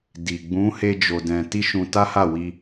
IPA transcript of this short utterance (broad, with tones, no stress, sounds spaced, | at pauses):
d i˨ ɡ͡b ũ˨˦ h e˧ d͡ʒ o˧ d ɛ̃˧ t i˦ ʃ ũ˧ t a˦ h a˦˨ w i˧